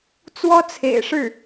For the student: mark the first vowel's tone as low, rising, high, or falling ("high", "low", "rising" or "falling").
high